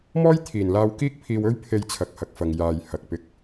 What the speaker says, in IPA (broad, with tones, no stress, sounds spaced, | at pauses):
m ɔː˥ j t̪ʰ iː˨˩ n l aː˧ w k iː˥ k̚ pʰ iː˧ w ɵ˥ ɥ pʰ e˧ j t͡sʰ ɐ˨ k̚ h ɐ˨ k̚ f ɐ˨ ŋ j aː˨ j h ɐ˨ k̚ p ɪ˧ k̚